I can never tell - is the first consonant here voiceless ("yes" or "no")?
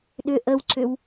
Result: no